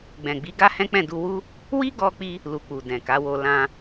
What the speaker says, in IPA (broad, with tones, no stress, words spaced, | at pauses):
ɡ͡bɛ̃˨ɡ͡bi˨˦ ɡa˦hɛ̃˦k͡pɛ̃˦˨du˧ wu˦ | wi˦ɡɔ˧k͡pi˧ | lu˧k͡pu˨ dɛ̃˨ka˨˦wo˧ lã˧